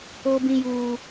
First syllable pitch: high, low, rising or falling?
high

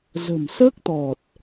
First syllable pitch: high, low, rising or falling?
low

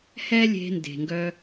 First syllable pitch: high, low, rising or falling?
high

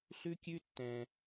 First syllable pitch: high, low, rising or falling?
high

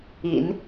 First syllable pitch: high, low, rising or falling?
low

